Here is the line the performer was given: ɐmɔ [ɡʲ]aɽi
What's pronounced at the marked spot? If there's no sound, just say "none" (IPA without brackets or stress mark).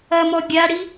ɡʲ